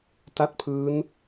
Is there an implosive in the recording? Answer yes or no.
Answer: no